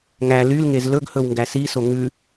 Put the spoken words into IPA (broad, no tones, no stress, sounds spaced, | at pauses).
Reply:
ŋ æ l y l ŋ e z l ɵ ɡ h ɵ w ŋ ɡ æ s i s o ŋ ʉ